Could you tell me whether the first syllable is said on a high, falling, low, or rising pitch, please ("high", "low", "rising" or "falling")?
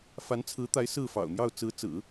rising